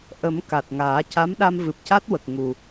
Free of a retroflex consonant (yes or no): yes